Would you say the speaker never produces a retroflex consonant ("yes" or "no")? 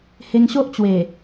yes